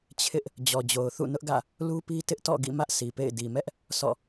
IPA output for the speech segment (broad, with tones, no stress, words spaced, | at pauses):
t͡ɕʰɪ˦ʔ | d͡ʑɔ˨d͡ʑo˨ʊ̯ θṵ˦˨nʊ˦ʔɡä̰˦˨ | lu˦pi˦ tɪ˦ʔtɔ̰˦˨ ɡḭ˦˨mä˦ʔ sʰi˨pḛ˦˨ɪ̯ di˨mɛ˦ʔ | sɔ̰˦˨